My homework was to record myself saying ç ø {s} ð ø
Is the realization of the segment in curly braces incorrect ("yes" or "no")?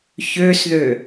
no